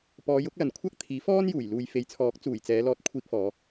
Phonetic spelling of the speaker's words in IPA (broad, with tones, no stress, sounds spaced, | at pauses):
p ɔː˨˧ j ʊ˨˥ k̚ l ɐ˨ n kʷʰ ɐ˥ k̚ t̪ʰ iː˨˥ f ɔː˥ n j uː˨˩ j l uː˨ j f e˨˧ j t͡sʰ ɔː˨˥ k̚ t͡s uː˨˩ j t͡s ɛː˨˧ l ɔː˧ t̚ kʷʰ iː˧ k̚ f ɔː˨˧